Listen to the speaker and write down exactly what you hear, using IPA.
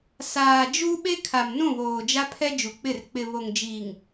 s aː˨ d͡ʒ u˦ ɓ e˦ kʰ a˨ m n ũ˦˨ β oː˨ d͡ʒ a˦ pʰ ɛ˦ d͡ʒ u˨ k͡p ɪ˦˨ r k͡p ɪ˨ β o˨ ŋ d͡ʒ iː˨ ŋ

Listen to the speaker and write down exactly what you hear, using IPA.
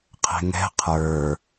qʰ ɛ̤ ŋ ɛ̤ qʰ ə˞

